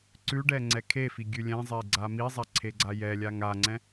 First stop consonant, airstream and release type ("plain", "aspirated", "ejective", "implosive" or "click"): click